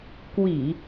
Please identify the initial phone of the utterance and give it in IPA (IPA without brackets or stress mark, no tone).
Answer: k